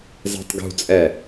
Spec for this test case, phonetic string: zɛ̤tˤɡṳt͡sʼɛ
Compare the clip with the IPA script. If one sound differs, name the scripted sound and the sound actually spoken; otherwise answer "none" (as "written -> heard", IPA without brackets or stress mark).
none